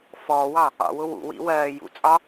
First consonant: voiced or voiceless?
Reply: voiceless